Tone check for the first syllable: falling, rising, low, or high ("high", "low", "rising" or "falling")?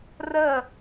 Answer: falling